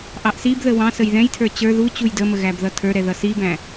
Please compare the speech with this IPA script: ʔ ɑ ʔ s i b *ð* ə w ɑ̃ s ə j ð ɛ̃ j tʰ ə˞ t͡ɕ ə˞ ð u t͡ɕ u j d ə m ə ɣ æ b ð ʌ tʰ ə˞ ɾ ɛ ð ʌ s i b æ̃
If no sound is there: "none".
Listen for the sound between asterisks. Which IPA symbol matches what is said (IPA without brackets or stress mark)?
ð